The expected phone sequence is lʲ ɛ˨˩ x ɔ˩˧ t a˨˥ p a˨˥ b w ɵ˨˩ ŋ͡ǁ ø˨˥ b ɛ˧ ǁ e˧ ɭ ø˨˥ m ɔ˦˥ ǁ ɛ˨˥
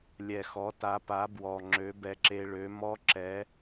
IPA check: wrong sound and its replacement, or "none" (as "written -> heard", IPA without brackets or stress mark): ɵ˨˩ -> ɔ˨˩